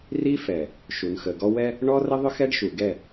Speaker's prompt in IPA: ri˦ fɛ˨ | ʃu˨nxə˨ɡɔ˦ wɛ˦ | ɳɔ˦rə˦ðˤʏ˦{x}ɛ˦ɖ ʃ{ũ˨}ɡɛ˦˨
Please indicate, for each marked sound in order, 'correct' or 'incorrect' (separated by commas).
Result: correct, incorrect